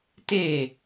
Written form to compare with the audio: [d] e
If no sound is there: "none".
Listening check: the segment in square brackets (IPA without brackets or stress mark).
t